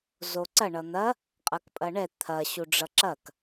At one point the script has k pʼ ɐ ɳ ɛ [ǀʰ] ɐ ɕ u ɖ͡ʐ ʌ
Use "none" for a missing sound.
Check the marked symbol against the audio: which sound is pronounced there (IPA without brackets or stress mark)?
t̪ʰ